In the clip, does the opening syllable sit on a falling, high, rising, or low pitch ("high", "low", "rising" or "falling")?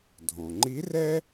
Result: low